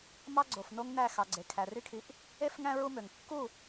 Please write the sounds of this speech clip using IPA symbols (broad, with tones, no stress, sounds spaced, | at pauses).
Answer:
m ɑ˦ ɡ͡ǀ o˨ f n o˦ ŋ n æ˦˨ x ɑ˨ ɡ͡ǀ e˨ kʰ æ˨ r y˦ kʰ i˧ ʔ | e˦ f ŋ æ̃˦ ɹ u˦ m ø˨ ŋ kː u˦˨